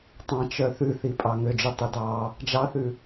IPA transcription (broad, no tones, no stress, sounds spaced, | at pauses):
tˤ ɑ̃ t͡ʃ œ θ ʉ θ i pʼ ɑ ŋ ø d͡ʒ ʉ tˤ ø d ɑ | d͡ʒ ɑ θ ʉ